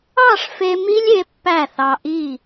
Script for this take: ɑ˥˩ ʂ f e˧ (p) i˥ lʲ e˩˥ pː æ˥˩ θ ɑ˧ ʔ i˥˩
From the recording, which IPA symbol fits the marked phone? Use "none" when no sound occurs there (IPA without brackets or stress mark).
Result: m